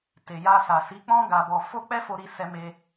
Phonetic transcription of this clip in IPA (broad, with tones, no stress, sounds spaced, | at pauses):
t e˨ j a˧ s a˨ s i˨˦ k͡p ɔ̃˦ ɡ a˧ b ɔ˧ f o˦ k͡p ɛ˦ f o˧ ɾ i˧ s ɛ˧ m e˧